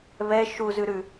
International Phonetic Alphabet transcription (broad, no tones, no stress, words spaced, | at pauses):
βɛ ʃuzʉ ɾʉ